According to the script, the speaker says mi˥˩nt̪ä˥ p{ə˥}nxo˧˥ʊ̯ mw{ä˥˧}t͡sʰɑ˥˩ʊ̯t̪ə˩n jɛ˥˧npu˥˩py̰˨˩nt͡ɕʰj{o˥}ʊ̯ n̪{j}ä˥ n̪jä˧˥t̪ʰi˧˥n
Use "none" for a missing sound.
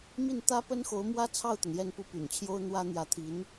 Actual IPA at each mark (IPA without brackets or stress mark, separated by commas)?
ə˥, ä˥, o˥, w